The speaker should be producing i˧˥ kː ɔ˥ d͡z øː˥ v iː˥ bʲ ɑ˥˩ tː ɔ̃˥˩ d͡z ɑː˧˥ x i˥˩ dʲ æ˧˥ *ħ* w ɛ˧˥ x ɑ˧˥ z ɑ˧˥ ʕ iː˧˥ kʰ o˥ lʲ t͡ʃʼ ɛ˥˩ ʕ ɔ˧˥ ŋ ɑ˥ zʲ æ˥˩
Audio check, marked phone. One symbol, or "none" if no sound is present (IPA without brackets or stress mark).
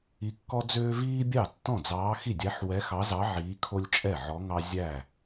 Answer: ħ